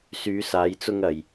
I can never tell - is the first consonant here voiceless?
yes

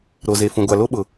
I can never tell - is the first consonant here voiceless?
no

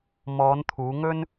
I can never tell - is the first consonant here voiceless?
no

